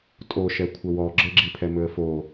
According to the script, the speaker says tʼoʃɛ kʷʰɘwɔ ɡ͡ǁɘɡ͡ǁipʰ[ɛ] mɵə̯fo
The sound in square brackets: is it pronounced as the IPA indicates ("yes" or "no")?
yes